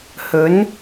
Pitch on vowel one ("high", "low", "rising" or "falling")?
rising